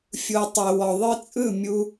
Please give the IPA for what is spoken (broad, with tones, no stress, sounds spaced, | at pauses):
fʲ u˨ tˤ e˨ w ɔ˨ ðˤ ɯ˧ t͡sʼ ɯ˦˨ mʲ u˧